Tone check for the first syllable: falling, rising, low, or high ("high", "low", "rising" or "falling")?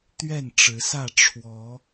falling